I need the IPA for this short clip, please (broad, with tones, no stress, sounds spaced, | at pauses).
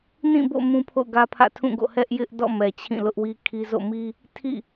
n ĩ˦˨ b o̰˦˨ m ũ˦ pʰ o̰˦˨ ʊ̯ ɡ ä˦ pʰ ä̰˦˨ tʰ ũ˦˨ ɡ o̰˦˨ h ɛ˦ ʔ j ɪ˦ ʔ d ɔ̰˦˨ m ɛ˨ t͡ɕʰ ĩ˦˨ l ʊ˦ ʔ w i˦ kʰ i˦ z o̰˦˨ m i˦ | tʰ ḭ˦˨